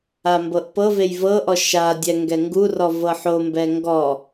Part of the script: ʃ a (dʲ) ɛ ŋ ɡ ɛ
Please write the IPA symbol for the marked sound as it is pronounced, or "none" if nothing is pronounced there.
dʲ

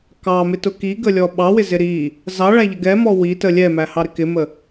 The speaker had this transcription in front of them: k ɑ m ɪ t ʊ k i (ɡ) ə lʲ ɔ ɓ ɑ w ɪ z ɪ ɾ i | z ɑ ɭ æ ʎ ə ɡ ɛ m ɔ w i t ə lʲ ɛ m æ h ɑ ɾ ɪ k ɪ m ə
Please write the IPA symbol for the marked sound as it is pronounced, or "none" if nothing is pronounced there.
ɡ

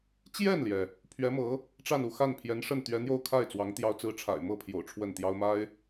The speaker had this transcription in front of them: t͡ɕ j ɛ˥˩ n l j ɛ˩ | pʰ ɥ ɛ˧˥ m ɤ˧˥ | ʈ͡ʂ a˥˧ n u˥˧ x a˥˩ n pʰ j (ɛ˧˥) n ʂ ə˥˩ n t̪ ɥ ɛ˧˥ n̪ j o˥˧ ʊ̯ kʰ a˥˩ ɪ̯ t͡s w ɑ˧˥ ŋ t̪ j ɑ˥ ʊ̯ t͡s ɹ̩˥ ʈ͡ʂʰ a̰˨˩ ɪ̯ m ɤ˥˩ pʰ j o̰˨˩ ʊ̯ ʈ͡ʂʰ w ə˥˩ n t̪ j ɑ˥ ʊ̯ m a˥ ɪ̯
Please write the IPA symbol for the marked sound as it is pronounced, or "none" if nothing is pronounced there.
ɛ˧˥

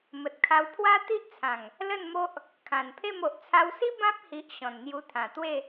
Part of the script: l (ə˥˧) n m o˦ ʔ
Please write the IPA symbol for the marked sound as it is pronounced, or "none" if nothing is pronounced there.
ə˥˧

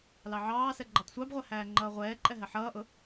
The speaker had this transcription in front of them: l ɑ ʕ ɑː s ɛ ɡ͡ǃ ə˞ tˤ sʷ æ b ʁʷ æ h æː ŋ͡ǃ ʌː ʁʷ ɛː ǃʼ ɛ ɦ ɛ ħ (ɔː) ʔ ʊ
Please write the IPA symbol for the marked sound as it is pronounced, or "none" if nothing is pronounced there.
ʌː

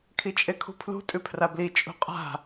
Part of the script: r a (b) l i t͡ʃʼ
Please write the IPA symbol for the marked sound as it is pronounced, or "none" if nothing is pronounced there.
b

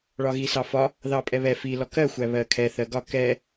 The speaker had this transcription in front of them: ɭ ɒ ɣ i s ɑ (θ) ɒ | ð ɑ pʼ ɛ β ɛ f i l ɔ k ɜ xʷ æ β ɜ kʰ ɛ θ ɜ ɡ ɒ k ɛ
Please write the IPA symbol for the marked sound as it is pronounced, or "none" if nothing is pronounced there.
f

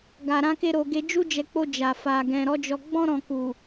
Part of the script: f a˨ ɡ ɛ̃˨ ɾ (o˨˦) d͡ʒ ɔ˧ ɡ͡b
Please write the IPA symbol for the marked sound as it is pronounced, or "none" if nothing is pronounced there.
ɔ˨˦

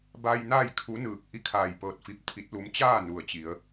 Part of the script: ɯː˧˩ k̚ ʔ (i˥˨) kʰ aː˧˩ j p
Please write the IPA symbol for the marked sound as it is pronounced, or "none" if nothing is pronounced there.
i˥˨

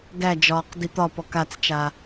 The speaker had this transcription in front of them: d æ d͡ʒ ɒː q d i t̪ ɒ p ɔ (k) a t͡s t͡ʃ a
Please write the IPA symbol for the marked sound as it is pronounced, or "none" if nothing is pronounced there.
k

